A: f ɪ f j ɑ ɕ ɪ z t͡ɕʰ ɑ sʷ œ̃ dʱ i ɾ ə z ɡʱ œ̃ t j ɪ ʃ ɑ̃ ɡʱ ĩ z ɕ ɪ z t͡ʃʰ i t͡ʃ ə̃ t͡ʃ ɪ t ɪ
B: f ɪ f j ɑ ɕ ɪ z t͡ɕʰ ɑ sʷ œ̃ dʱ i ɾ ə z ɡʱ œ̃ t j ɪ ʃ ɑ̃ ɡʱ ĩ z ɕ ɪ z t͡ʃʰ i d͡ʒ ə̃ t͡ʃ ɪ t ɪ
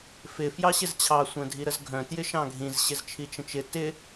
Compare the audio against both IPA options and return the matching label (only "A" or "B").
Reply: A